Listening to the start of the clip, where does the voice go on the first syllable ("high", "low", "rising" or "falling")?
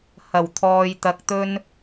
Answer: low